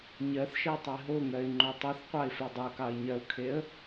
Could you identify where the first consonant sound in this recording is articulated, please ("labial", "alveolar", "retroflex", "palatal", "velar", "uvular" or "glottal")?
palatal